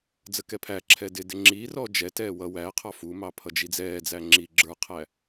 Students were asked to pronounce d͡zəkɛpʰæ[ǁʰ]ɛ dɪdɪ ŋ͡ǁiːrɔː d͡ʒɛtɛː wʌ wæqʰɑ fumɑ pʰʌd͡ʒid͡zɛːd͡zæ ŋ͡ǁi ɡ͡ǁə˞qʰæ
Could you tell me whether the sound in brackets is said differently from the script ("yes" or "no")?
no